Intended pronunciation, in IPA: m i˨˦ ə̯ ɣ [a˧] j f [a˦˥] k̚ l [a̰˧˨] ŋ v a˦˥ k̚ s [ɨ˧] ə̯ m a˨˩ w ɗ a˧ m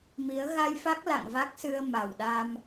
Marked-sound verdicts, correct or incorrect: correct, correct, correct, correct

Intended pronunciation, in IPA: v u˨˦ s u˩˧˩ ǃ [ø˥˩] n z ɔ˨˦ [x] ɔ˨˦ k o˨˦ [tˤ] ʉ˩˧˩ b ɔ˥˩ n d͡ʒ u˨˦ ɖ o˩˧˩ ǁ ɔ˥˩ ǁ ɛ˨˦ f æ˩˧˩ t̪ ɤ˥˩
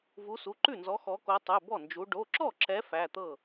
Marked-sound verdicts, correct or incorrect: incorrect, correct, correct

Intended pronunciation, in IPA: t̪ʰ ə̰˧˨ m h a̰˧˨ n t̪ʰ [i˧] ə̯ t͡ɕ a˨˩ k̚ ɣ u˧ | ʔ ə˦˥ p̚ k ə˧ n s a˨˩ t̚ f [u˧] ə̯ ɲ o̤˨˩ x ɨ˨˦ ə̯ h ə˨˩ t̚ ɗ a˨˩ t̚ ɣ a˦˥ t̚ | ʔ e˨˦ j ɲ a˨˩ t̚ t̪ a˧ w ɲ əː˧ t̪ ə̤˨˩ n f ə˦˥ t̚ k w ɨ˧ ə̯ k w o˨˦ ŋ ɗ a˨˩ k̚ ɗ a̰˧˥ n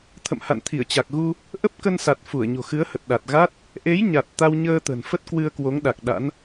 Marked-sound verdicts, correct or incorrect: incorrect, incorrect

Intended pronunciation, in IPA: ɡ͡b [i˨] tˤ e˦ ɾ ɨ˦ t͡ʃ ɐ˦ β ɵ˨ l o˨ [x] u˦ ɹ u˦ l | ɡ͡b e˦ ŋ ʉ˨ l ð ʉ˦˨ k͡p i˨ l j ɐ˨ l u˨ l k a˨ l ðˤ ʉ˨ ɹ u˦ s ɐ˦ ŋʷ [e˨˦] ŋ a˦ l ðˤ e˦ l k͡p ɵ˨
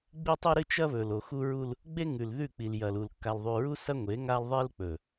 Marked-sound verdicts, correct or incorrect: incorrect, correct, correct

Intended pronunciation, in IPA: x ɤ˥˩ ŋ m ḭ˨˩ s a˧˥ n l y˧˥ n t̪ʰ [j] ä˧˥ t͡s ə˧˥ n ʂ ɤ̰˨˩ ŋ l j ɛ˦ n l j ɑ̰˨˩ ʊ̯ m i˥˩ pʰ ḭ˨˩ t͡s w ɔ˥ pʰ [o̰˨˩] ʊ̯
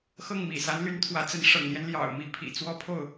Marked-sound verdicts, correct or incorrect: incorrect, incorrect

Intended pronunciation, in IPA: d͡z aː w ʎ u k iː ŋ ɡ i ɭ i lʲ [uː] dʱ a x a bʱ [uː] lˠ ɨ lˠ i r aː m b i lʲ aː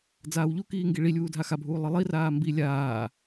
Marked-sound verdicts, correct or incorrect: correct, correct

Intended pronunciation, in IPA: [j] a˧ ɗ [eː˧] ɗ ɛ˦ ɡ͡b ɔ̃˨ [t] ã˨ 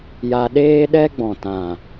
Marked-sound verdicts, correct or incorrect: correct, incorrect, correct

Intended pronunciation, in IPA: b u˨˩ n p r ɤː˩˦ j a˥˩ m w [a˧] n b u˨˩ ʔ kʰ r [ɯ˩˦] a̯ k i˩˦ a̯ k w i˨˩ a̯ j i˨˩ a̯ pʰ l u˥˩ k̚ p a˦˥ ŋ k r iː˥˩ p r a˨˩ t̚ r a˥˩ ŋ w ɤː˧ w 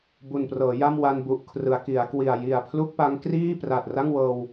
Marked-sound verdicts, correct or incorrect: correct, correct

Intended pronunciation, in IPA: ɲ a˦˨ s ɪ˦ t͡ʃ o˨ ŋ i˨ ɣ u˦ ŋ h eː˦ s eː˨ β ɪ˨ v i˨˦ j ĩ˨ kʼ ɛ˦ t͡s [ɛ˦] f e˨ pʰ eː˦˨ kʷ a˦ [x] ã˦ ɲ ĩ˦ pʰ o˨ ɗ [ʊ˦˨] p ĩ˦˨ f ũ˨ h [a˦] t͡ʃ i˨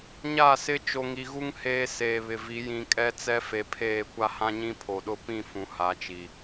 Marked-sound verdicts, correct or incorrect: correct, incorrect, correct, incorrect

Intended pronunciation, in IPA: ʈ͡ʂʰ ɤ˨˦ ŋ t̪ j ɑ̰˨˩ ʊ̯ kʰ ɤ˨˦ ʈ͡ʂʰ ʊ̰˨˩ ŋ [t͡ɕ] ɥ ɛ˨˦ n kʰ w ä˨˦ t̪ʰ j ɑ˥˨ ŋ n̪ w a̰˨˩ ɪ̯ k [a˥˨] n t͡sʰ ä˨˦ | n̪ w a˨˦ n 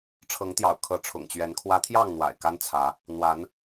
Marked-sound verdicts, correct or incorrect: correct, incorrect

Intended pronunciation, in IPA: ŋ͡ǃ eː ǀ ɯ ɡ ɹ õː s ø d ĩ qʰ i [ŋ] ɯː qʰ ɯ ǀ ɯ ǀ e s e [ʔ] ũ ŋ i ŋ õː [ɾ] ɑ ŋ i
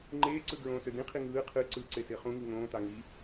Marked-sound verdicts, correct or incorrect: correct, incorrect, incorrect

